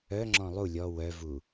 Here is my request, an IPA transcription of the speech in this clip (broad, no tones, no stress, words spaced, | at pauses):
œŋ͡ǁɔ̃ lˠu lʲɔ wœvu